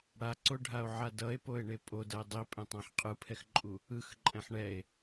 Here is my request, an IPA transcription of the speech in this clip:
ɽ a ǀ o ɖʱ a o̯ ʕ a d ʌ e̯ p o e̯ ɳ e pʼ o d ʌ e̯ dˤ i pʼ ɛ̃ tˤ ã ħ qʼ ɯ pʰ ɛ x ǃʼ u | ɯ x ǃʼ ɛ̃ ħ ɳ ɛ e̯

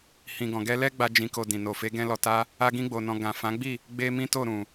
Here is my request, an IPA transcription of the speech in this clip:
h ĩ˨ ɡ ɔ̃˨ ɡ ɛ˧ l ɛ˦ ɡ͡b a˦ d͡ʒ ĩ˧ k o˧ d ĩ˨ n o˨ f e˨˦ ɡ ɛ̃˦ l ɔ˧ t a˦ | a˦ ɡ ĩ˦ ɡ͡b o˧ n ɔ̃˧ ɡ ã˨ f ã˨˦ ɡ͡b i˦˨ | ɡ͡b e˦ m ĩ˦ t o˦˨ ɾ ũ˨

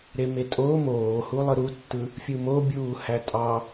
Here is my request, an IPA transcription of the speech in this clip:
ɾ e m e tʼ o m oː h u lˠ ɯ ɾ u tː ɯ | fʲ ɯ m o bʲ uː h æ tʼ ɑ

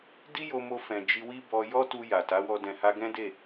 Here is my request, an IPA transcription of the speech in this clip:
d i˦ j o˧ m o˧ f ɛ̃˨ d͡ʒ i˧ w i˦ b ɔ˧ j ɔ˦ t u˧ j a˨ t a˨˦ w ɔ˧ d ɛ̃˨ h a˧ ɡ ɛ̃˦ d e˦˨

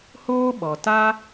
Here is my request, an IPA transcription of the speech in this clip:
h oː˦ ɓ ɔ˨ t a˦

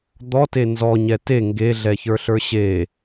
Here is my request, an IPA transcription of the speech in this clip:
d̪ ɔ t e n z ɔ ɲ ɛ t e ŋ ɡ e ɮ ɛ ç ə˞ ɬ ə˞ ɕ e

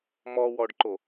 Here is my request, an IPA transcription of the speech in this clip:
m ɔ w ɔ ɖ ǃ o

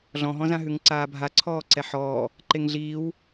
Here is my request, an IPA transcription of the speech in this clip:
ɮ ɔ̃ ɦ ɔ̃ z ã ɦ ʉ ŋ ǀ aː bʱ a ǀʰ ɔː ǀ ɛ ħ ɔː | ǃ e ŋ ɮ iː w

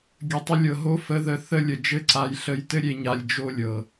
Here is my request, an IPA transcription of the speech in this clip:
ɡʲ ə˨ tˤ ə˧ lʲ ɤ˨ ɦ o˦ f ə˧ ð ə˧ θ ə˦˨ lʲ ə˨ d͡ʒ ɘ˦˨ ǀ a˧ j ɬ ə˧ j t ɘ˦ ɾʲ e˧ ɲ a˧ lʲ d͡ʒ o˦ lʲ ɤ˨

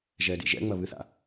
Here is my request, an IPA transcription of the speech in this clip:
ʒ ɛ d ḭ ʒ ɛ̰ ŋ͡m ɐ β ɨ θ a̰

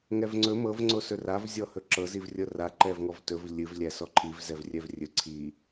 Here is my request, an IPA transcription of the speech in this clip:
ŋ ɛ v ŋ͡ǀ ɵ m ɤ v ŋ͡ǀ o s ɵ r a v zʲ ɔ h ɵ ǁ ɤ z i v rʲ ɤ r a ǃ ɛ v ŋ ɔ v t ɵ v lʲ ɨ v lʲ æ s ɔ ǃʰ i v z ɛ v rʲ ɛ v rʲ ɵ ǀʰ i

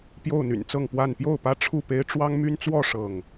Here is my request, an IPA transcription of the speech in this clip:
p j o˥˨ ʊ̯ n̪ y̰˨˩ n t͡s ɤ˥˨ ŋ p w a˥˨ n p j o˥˨ ʊ̯ p ä˦ ʈ͡ʂʰ u˥˨ p e˦ ɪ̯ ʈ͡ʂ w ɑ˦ ŋ m y˦ n t͡s w ɔ˥˨ ʂ ɤ˥˨ ŋ

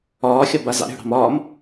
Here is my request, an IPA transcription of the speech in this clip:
ɒː xʲ ɒ b a z ɑ̰ ɾʲ o̤ ɽ ɑ̤ m ɒː m

